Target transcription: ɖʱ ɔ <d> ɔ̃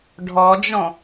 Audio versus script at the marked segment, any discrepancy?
yes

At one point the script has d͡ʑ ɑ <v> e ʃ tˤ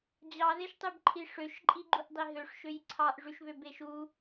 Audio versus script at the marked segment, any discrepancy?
yes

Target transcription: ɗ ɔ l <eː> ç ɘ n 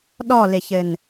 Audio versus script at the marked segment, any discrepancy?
yes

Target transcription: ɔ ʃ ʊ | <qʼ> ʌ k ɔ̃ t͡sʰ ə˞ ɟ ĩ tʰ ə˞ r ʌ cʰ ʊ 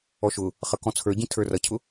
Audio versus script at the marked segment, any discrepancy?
yes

